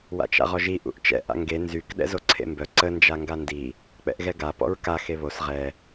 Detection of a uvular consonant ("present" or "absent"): present